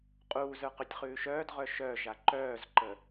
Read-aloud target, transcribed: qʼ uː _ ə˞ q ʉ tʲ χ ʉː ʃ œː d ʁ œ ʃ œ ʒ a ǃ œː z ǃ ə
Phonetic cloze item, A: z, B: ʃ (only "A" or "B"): A